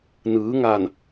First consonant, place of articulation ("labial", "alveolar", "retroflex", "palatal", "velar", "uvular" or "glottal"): alveolar